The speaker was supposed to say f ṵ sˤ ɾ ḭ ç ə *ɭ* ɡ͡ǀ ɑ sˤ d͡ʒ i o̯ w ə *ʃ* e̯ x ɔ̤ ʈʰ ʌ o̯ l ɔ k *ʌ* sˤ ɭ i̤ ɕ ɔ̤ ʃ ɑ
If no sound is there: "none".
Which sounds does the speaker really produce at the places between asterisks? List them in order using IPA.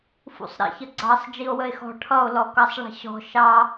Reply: none, none, ʌ

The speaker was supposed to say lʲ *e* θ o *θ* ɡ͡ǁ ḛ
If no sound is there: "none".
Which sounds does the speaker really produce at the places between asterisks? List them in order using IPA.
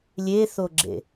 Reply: e, none

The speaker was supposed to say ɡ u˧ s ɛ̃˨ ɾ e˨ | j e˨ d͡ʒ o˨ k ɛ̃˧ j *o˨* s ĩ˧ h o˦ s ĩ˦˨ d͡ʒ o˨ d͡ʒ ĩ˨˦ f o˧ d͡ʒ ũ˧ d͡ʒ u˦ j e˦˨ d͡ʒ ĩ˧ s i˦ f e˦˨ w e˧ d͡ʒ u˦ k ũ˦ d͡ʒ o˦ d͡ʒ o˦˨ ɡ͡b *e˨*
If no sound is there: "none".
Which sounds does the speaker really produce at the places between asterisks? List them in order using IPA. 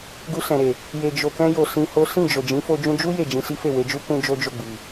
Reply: o˨, i˨

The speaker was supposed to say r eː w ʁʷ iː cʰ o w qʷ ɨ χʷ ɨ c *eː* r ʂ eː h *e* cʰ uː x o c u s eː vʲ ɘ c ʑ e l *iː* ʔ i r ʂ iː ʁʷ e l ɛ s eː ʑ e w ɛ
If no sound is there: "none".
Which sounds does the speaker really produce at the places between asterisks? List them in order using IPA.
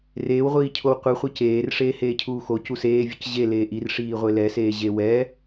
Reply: eː, eː, eː

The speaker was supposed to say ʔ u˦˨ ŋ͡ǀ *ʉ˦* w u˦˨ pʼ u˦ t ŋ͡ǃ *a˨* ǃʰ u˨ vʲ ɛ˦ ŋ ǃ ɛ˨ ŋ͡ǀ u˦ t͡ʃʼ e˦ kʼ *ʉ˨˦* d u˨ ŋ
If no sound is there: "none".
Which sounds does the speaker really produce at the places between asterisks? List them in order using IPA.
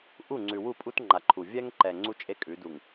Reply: ʉ˨, a˨, ʉ˨˦

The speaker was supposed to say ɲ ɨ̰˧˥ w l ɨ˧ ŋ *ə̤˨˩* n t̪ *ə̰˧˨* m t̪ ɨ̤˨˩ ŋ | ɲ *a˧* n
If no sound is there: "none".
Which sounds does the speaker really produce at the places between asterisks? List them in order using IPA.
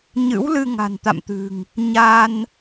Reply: a̤˨˩, a̰˧˨, a˧

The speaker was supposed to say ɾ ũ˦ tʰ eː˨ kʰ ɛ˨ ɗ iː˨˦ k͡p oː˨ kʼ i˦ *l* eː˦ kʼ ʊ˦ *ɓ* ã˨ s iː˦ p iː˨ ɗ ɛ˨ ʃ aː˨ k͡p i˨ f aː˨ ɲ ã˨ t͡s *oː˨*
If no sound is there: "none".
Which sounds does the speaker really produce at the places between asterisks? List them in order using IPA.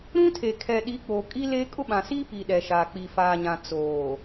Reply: l, ɓ, oː˨

